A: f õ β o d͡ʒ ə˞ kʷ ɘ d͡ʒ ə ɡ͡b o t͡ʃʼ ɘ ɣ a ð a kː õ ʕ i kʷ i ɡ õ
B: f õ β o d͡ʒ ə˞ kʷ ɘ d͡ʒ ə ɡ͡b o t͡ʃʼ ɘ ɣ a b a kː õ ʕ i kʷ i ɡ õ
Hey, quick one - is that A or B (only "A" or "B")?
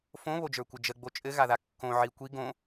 A